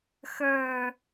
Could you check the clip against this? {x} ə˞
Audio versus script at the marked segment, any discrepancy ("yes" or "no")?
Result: no